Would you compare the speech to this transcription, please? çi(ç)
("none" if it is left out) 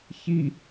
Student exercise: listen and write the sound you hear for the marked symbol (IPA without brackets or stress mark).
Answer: none